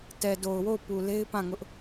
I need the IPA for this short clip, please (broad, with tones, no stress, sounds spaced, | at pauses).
t ɛ˨ d o˨ ʊ̯ w o˦˨ ʊ̯ p u˨ l e˦ ɪ̯ p ã˦˨ ŋ ʊ˦ ʔ